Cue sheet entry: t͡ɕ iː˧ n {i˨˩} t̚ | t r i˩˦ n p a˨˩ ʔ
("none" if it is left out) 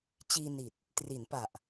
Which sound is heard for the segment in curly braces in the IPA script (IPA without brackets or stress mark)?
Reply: i˨˩